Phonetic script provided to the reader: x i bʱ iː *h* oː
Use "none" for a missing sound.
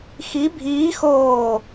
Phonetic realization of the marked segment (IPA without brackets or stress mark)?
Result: x